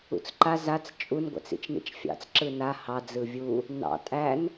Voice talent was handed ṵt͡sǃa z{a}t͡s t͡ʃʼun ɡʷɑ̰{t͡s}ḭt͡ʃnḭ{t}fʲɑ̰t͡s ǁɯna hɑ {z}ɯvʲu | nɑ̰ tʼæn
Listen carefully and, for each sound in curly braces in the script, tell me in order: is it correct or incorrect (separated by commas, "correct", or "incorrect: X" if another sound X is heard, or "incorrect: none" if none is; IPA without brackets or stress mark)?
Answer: correct, correct, incorrect: t͡ʃ, incorrect: d͡z